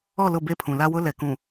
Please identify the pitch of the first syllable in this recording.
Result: falling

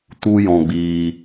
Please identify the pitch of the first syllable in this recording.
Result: high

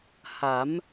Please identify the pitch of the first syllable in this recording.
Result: rising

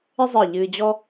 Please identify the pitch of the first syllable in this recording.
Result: high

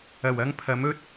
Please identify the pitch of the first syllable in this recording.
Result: low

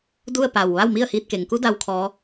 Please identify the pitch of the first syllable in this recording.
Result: falling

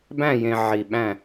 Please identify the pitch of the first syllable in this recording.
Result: falling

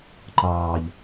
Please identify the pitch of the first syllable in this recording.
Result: low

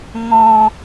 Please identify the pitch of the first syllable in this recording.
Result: low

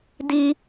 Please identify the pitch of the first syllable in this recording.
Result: low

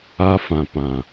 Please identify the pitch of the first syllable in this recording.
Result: high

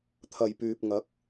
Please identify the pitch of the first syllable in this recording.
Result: low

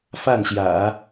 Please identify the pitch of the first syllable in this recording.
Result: falling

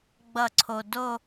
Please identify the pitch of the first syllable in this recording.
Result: falling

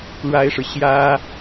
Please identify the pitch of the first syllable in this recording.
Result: high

